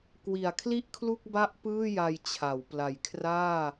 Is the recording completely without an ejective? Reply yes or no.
yes